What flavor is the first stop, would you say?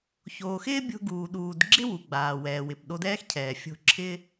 plain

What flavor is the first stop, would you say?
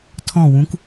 aspirated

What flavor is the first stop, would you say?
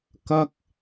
plain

